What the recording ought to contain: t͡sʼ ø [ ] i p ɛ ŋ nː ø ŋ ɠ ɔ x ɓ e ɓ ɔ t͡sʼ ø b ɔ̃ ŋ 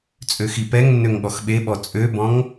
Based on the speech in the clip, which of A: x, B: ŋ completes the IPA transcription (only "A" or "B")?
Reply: A